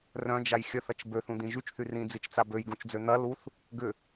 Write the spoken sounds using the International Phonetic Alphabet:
rœ̃d͡ʒaj xʲəθɐt͡ʃ bøθũd̪ĩ ʒyt͡ʃθy rĩd͡zit͡ʃt͡sa bøjɡũt͡ʃd͡zø n̪ɐ luθ | ɡʏ

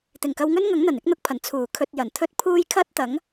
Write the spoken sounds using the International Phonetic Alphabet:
t̪ɪ˨˩ŋkɐ˧wŋɵ˥nŋɐ˨˥ŋ n̪ɐ˨˩nɪ˥k̚n̪ʊ˧k̚pʰɐ˨˩n t͡sʰuː˨˩kʰɵ˧t̚ jɐ˨˩nt̪ʰɵ˥t̚ pʰuː˥j kʰɐ˥t̚t̪ɐ˨˥ŋ

